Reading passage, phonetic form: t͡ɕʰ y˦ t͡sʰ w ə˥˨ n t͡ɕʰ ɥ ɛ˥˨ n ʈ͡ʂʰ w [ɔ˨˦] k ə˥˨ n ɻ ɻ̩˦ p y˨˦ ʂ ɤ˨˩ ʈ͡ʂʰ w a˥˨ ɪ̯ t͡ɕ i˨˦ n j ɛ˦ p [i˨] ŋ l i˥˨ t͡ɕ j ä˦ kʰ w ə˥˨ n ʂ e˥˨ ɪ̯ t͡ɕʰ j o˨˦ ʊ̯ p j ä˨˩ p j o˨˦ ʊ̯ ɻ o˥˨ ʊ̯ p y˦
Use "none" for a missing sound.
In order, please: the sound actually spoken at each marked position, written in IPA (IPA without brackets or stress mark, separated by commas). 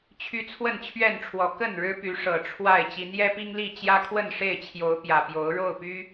ɔ˨˦, i˦